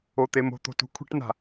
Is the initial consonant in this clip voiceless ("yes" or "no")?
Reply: yes